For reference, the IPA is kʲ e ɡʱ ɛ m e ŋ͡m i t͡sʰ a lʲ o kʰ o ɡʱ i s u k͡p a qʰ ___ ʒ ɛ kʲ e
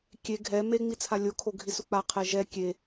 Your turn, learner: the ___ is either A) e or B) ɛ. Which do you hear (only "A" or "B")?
B